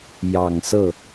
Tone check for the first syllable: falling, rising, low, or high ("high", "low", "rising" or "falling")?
low